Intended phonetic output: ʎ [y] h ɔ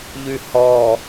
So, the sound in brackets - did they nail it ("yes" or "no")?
yes